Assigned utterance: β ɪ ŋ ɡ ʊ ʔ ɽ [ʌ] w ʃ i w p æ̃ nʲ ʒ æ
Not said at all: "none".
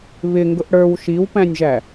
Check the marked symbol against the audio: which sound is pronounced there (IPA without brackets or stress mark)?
ə˞